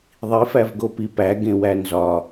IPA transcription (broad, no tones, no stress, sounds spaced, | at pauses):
ðˤ i f æ v ɡ o p i p æ ɡ ẽ w æ n z ɒ